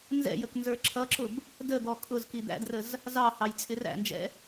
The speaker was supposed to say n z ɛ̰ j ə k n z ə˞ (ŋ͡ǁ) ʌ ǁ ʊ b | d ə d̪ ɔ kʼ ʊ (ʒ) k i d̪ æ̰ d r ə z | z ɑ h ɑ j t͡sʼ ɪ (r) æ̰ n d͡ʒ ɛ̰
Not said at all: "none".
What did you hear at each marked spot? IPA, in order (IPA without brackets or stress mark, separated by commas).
ǁʰ, z, r